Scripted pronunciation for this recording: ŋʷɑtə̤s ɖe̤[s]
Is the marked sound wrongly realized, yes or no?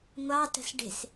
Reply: no